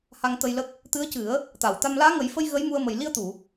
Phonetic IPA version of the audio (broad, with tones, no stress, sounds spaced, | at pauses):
h a˧ ŋ t̪ ə˧ j l ə˦˥ k̚ | t̪ ɨ˧˥ ə̯ c ɨ˨˩˦ ə̯ | t̪ a˨˩˨ w t̪ a˧ m l aː˧˥ ŋ ə˨˩˦ j f ə˧ j ɣ ə˧˥ j m u˧ ə̯ m ə˨˩ j l i˧ ə̯ t̪ u˨˩˨